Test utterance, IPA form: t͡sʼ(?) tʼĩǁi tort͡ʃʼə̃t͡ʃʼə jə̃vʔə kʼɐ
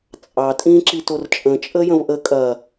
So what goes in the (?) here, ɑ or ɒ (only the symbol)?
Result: ɑ